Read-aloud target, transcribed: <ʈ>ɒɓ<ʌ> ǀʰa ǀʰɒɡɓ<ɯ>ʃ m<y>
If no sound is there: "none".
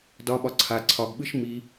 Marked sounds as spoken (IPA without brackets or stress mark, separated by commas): d, ɒ, ɯ, i